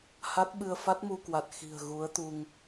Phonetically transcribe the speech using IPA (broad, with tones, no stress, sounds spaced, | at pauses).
h a˦˥ t̚ ɓ ɨ˧ ə̯ f a˦˥ t̚ m u˧ k w a˨˩ t̚ x i̤˨˩ ə̯ ɣ u˨˦ ə̯ t̪ u˧ ŋ